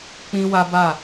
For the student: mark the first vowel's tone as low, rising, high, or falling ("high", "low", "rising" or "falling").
high